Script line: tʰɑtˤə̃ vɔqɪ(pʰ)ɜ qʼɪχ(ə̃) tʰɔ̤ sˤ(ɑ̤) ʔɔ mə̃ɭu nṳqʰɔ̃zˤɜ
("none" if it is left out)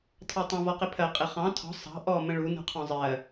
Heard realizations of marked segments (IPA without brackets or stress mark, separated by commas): pʰ, ɑ̃, ɑ̤